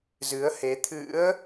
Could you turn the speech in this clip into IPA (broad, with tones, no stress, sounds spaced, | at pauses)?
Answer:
z ɨ˨˦ ə̯ h e˨˦ t̪ʰ ɨ̰˧˥ ə̯